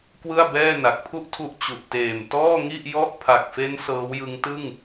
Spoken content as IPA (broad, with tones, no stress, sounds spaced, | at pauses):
k w ɯ˥˩ a̯ b ɛː˥˩ n a˨˩ k̚ pʰ u˥˩ ʔ tʰ u˦˥ ʔ t͡ɕ u˨˩ ʔ t eː˨˩ m t ɔː˥˩ ŋ i˥˩ ʔ j ɔ˥˩ ʔ pʰ a˨˩ k̚ f e˦˥ n s ɤː˦˥ w j ɯ˦˥ ŋ t ɯ˥˩ ŋ